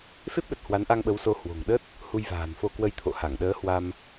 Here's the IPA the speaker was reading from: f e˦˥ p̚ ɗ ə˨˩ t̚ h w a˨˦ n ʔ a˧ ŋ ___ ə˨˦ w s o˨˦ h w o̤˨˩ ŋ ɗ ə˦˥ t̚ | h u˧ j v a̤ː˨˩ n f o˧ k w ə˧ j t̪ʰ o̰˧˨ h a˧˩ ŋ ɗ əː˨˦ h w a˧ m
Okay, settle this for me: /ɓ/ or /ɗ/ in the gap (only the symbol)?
ɓ